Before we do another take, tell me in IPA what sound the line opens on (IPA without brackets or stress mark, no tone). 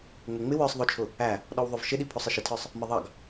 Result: ŋ͡m